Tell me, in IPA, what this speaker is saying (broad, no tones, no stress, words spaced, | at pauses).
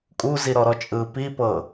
kʼuziɾɔɾɔ t͡ʃʼɯːpipɤ